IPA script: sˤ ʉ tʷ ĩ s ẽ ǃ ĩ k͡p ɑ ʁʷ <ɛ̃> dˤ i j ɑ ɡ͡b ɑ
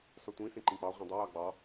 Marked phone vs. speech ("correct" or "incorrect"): correct